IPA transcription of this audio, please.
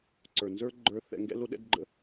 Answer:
ǀə˞˩nzə˞˥ ɡ͡ǃə˞˧θɛ̰˧ ŋɡɛ̰˥lo˥ɗɛ̰˥dɡ͡ǃə̰˥

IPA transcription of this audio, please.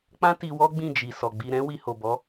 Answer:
k͡pã˦ti˧ wɔ˦ɡ͡bĩ˦˨d͡ʒi˨ sɔ˨ɡ͡bi˧ ɾɛ̃˦wi˧ho˨ bɔ˨˦

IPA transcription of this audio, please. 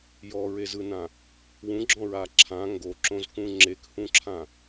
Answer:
jɔɹezɯnã | wũɡ͡ǁɔ̃ɹa ǁʰã ŋɡoǁõzkũ ŋ͡ǁekhũǁʰã

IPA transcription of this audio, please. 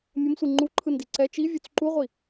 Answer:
mʲʌmsʷi ŋ͡ǃuǃʰɯndi ǀɛ t͡ʃivʲot͡s ǃuʁʷi

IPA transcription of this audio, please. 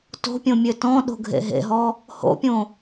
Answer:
to̤pʲõmʲø tɔ̃ ɗo̤ɡʱḛɦḛɦɔ | ho̰pʲõ

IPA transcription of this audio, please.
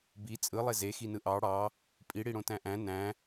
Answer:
bi t͡sʼɯlˠe zexinɯ ʔɑ ɽɑ | pʼiɽiɽõ tæ̃ʔæ̃ næ̃

